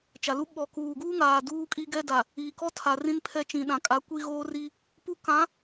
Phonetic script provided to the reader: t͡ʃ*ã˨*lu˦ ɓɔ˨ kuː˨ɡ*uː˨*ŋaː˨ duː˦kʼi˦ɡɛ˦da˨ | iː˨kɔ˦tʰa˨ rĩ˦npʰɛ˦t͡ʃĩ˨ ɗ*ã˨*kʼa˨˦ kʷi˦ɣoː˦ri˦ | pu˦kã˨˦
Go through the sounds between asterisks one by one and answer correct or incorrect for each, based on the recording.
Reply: incorrect: a˨, incorrect: uː˦, correct

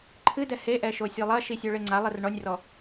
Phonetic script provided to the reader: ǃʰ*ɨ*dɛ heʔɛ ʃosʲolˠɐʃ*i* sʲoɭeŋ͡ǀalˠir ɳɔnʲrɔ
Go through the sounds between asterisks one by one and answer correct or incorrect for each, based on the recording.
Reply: correct, correct

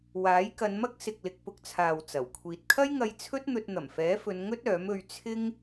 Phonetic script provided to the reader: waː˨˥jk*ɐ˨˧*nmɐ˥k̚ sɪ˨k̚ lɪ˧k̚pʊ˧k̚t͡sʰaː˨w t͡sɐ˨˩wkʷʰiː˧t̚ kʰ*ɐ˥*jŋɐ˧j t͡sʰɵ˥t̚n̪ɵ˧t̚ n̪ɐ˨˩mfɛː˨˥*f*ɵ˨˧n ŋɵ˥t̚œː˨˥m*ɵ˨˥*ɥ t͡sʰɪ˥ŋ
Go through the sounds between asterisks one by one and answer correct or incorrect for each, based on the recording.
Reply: correct, correct, correct, incorrect: ɵ˧

